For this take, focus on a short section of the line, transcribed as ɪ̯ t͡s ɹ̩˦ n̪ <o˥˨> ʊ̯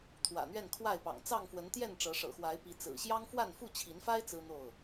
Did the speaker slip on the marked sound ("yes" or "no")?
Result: no